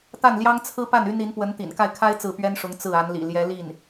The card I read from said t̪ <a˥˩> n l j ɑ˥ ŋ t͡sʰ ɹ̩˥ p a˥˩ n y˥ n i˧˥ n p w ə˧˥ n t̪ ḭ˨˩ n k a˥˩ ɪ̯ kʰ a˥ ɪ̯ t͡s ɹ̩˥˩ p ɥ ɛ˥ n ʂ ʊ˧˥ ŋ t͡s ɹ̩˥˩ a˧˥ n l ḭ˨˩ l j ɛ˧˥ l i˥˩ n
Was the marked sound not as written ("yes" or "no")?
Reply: no